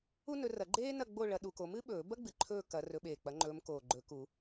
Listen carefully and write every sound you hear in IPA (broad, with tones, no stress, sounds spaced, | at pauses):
u˥ n ɵ˨˦ r ɐ˨˩˦ ɡ͡ǃ eː˥ n ɐ˥˨ ɡ͡b o˥˨ ɭ ɐ˨˦ ɗ u˨˦ k o˨˦ m ɨ˥ ɓ ɵː˨˩˦ b ɐ˥ ɡ͡b ɨ˨˩ ǃʰ ɵː˥˨ k ɐ˨˦ r ɵ˨˦ ɓ eː˨˩ k͡p ɐ˨˦ ŋ͡ǃ ɵː˨˦ m k oː˨˩ ɡ͡ǃ ɵ˨˩˦ k u˨˩˦